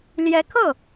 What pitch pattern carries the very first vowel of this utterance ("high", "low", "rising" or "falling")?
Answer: rising